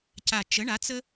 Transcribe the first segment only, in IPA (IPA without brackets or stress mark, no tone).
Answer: c